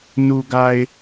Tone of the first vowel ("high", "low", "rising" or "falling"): low